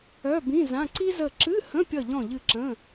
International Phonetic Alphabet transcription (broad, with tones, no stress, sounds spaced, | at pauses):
œ˧˥˧ b ĩ˧˥˧ z ã˧˥˧ ǀ i˥ z ə˦˨ ǁ ɨ˧˥˧ h ə̃˧˥˧ pʲ ʌ˦˨ ʎ ɔ̃˦˨ ʎ ɨ˦˨ ǁ ə̃˧˥˧